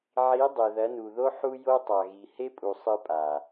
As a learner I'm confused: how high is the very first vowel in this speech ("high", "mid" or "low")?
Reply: high